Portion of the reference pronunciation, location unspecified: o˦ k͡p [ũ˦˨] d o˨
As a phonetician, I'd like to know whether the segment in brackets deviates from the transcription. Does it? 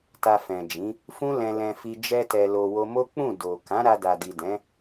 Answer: no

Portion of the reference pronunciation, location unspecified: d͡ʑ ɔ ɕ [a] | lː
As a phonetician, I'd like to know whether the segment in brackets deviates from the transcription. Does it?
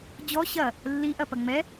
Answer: yes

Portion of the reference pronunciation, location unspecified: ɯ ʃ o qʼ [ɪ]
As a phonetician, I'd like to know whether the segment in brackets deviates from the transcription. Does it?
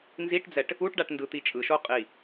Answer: yes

